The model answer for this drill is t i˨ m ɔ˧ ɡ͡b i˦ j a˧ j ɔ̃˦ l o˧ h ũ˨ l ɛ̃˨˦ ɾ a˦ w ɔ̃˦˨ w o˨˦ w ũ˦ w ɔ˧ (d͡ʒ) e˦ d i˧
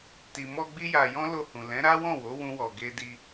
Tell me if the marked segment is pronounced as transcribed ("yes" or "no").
no